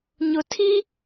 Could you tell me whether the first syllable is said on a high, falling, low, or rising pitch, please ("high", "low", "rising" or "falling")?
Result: low